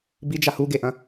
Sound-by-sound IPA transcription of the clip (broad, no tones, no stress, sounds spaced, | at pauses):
b i d͡ʒ a h u ɡ e ʔ ɐ̃